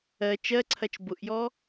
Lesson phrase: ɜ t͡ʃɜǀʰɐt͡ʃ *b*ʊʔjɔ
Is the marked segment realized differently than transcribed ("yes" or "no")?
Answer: no